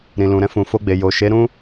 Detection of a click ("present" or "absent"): absent